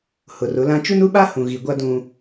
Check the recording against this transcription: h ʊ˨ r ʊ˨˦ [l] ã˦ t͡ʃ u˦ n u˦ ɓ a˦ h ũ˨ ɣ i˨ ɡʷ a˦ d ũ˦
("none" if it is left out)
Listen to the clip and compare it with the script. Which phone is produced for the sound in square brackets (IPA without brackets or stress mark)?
l